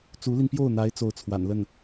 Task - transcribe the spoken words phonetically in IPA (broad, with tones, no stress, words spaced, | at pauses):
t͡su˧˥li˧npjo˥˩ʊ̯n̪a˧˥ɪ̯ t͡so˥˩ʊ̯t͡sʰwa̰˨˩nlə˥˩n